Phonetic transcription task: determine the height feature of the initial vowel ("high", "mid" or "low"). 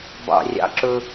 low